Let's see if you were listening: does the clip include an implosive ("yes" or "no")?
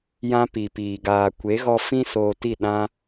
yes